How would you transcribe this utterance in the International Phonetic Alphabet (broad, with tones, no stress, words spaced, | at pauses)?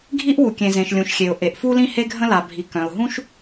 ɡʱi˥ʔwu˩kʲẽ˩zẽ˩ʃ lʲũ˩ʃxʲe˩ʊ̯ ʔe˩ʔfu˥lĩ˥ he˥ɡʱə̃˥ la˩bʱi˩ kœ̃˩ʊ̯ɦũ˥ʃ